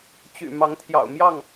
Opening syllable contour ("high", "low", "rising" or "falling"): low